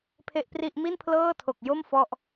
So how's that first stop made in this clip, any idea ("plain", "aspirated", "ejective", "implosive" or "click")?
aspirated